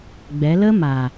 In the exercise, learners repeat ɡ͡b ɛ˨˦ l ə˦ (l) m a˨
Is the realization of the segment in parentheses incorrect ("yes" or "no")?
yes